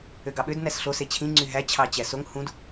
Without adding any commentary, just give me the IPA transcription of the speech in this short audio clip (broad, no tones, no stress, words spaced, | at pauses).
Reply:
øɡɑɓød næsɬo set͡ɕʰĩ ŋ͡ǀyɦæ t͡ɕʰɑt͡ɕæsoŋ hũd